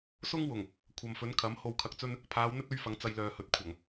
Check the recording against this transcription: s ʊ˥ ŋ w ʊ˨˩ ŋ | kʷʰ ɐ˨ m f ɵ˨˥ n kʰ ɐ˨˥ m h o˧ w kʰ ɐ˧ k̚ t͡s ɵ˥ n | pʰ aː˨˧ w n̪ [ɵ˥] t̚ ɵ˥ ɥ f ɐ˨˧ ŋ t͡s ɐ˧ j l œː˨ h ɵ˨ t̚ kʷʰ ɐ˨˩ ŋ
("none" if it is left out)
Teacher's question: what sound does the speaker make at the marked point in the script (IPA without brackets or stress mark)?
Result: ɵ˥